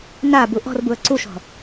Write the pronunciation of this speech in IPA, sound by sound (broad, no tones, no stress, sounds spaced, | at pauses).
n a b u ʔ ɔ̤ r b u ə̯ ǀ u ʃ ɔ̤